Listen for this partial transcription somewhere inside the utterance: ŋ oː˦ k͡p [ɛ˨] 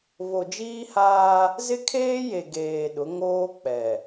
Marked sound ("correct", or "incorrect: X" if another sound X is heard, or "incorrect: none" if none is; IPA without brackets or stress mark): correct